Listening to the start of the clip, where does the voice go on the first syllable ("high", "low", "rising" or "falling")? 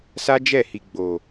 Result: high